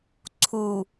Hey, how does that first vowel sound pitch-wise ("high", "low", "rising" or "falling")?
low